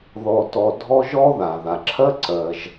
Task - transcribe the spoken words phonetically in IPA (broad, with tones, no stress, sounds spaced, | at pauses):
ð ɔ˩ t ɔ˩ dʱ ɔ˧ ʒ ɔ˥ ð a˩ ð a˩ ǁʰ ɜ˥ ǀ ɜ˩ ʒ